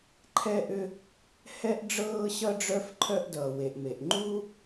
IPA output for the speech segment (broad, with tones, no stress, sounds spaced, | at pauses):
ǃʰ ɛ˥ ʔ ʏ˥ | h ɛ˥ ʔ ɖ͡ʐ ɤː˥ ɕ ʌ˥ ɖ͡ʐ œ˥ f ǃʰ œ˥ ʔ d ʌː˩ w e˩ ʔ m e˩ ʔ ŋ͡ǃ u˥